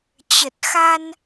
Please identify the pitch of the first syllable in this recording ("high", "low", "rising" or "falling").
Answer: low